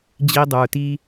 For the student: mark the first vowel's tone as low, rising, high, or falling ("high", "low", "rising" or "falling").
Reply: high